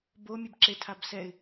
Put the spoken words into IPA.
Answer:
bo mʲebǁetʰabsɛɪ̯

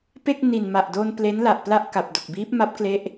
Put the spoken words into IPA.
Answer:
pe˥˩k̚ ni˨˩n ma˨˩ʔdo˧n ple˦˥nla˨˩ʔ pla˥˩ʔka˨˩p̚do˨˩k̚ biː˦˥p̚ma˦˥p̚ kle˥˩ʔ

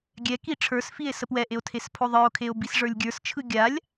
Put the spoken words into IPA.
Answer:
ɡʲɛki ʈ͡ʂʰə˞sfie̯ səpwɛʔeo̯ tʰespʰoðˤə˞o̯kʰeo̯ bisʐə˞lʲɡʲə˞st͡ʃʰɯ ɡʲalʲ

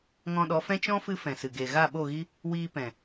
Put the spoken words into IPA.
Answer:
ŋɔ̃˧ɗɔ˨˦fɛ̃˦ t͡ʃɔ̃˦fɨ˧ fɛ̃˨sɨ˨ ɡe˨ ɣa˦˨ɓo˦˨ɣi˦ | wiː˧pɛ̃˨

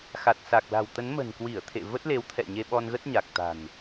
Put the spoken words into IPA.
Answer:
xa˨˩t̚ sa˨˩k̚la̤˨˩wt̪ə˨˦n mə̤˨˩nkwi˧˩ə̯t̪ʰḛ˧˨ və˦˥t̚le˨˦wt̪ʰɛ̰˧˨ ɲe˧ɓɔ˧nɣə˦˥t̚ɲa˨˩k̚ t̪a̤˨˩n

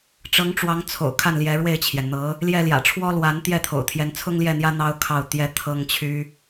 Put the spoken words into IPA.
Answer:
ʈ͡ʂɤ˧˥ŋ ʈ͡ʂwɑ˧˥ŋt͡sʰo̰˨˩ʊ̯ kʰa˥˩nljɛ˧˥ɻwe˥˩ɪ̯t͡ɕʰjɛ˩n n̪ɤ˧˥ | ljɛ˥˩ ljä̰˨˩ʈ͡ʂʰwɔ˥lwa˧˥n t̪jɛ˥˩t̪ʰo̰˨˩ʊ̯t̪ʰjɛ˧˥n t͡sʰʊ˥ŋljɛ˥˩n̪jä˥ n̪ɑ˥ʊ̯kʰɑ˥˩ʊ̯t̪jɛ˥ t̪ʰɤ˥ŋt͡ɕʰy˥

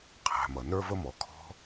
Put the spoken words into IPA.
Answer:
qʰæ̤˨mʌ˩ nə˞˥və˥mɔ˨ kʰɔ̤˦

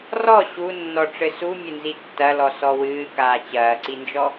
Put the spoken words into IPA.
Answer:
rɔ ɕunːɔ ʈ͡ʂɘsu mʲɘnzitːɐlɔ sɔwɨː kaːt͡ɕɐːǀind͡ʒɔ

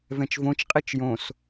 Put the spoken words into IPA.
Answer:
vɛ̃t͡ʃvõt͡ʃ qʼit͡ʃjõs

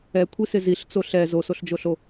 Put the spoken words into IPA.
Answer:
ɛkʷʰisɪ ziɬt͡so ɬɛ zosoɬd͡ʒoɬo

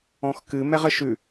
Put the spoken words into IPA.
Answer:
ɔ̃xkɨ mɛʁəʃʉ

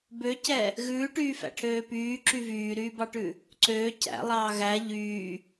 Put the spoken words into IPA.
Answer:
bøcɛ | ɣʉːʈyːfæ̰ʈʰøː pyːǁy vyːɾyːbɑʈʉ | ǀøː cæ̰lˠɑː ɣæ ʎyː

